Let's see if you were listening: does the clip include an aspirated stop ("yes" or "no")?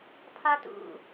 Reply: yes